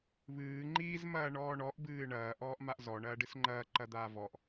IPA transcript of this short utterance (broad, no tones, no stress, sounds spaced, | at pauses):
β ɨː ŋ͡ǃ iː z m ɐː ɳ ɔː ɳ ɔ ʔ b ɨː ɳ ɐː ʔ ɔː ʔ m a ʔ z ɔ ɳ ɐː ɖ ɨ s ŋ͡ǃ ɐː ǃ ɐ d̪ aː v ɔ ʔ